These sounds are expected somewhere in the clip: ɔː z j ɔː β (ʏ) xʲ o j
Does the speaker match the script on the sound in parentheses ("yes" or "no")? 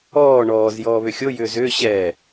yes